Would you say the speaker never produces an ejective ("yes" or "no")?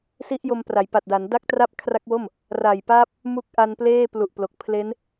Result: yes